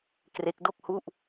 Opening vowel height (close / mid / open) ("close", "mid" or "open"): mid